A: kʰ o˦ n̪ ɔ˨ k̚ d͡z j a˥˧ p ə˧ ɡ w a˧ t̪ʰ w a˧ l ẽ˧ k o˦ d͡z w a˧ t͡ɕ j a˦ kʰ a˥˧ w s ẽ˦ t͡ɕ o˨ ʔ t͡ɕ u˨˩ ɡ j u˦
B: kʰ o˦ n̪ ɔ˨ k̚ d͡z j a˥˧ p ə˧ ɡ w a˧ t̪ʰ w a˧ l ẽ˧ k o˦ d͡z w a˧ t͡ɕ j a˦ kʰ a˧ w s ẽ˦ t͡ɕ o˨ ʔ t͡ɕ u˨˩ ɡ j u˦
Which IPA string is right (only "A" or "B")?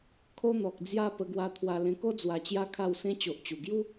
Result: A